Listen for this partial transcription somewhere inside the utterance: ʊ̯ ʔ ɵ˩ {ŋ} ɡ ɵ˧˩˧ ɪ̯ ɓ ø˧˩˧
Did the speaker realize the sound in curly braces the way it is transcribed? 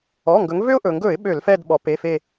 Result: yes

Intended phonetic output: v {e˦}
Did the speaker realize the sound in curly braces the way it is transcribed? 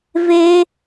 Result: yes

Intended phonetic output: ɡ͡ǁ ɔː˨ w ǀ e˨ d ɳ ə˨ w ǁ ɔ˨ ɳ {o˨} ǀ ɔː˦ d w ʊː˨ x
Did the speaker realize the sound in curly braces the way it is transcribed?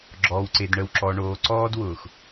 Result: no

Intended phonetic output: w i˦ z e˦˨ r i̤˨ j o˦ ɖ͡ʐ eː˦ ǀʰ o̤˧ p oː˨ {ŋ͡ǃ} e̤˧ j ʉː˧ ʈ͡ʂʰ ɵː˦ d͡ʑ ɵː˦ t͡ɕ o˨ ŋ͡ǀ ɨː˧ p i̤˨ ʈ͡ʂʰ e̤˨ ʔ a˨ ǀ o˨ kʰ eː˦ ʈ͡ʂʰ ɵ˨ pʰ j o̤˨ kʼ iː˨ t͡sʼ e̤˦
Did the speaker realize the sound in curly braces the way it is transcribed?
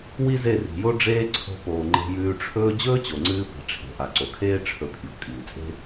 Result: yes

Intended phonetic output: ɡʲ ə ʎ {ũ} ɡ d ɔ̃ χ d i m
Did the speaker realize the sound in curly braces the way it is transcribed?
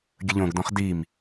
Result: no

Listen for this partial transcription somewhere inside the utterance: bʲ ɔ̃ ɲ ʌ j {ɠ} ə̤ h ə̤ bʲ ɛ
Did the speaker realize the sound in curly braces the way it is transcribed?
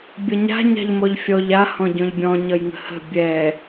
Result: no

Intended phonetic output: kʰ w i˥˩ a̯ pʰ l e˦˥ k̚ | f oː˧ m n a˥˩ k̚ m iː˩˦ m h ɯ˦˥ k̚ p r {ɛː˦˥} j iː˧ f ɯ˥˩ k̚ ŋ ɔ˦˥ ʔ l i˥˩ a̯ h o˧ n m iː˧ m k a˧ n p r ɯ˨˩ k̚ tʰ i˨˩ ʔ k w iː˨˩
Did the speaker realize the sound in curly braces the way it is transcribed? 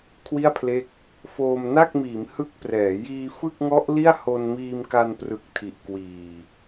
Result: no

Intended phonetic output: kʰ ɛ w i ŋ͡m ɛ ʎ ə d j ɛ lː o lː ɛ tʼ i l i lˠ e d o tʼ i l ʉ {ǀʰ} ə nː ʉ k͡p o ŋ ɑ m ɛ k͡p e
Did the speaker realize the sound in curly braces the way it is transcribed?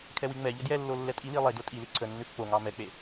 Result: yes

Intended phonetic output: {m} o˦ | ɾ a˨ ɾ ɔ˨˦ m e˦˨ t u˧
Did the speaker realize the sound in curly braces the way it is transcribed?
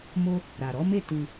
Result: yes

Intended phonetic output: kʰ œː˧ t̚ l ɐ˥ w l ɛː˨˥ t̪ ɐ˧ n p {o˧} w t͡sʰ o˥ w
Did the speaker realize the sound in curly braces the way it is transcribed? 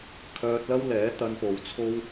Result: no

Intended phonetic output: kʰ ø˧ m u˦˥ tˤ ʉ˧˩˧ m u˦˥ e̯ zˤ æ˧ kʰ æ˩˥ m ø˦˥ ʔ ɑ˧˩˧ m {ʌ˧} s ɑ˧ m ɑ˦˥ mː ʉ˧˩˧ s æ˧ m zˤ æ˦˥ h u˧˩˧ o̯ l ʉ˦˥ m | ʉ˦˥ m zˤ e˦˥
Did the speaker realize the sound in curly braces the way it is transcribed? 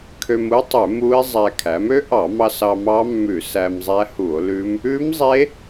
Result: no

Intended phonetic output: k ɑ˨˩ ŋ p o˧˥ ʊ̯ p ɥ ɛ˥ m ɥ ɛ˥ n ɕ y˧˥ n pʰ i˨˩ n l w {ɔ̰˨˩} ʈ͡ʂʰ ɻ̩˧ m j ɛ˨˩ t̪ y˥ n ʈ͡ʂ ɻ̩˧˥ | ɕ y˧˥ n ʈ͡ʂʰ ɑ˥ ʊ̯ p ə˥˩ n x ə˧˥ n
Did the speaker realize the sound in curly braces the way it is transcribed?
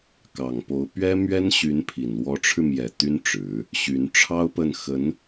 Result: no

